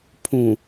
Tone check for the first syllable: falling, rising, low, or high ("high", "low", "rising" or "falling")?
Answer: low